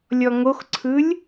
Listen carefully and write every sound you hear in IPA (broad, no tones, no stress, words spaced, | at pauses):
lʲɔŋoxǀʰɯlʲ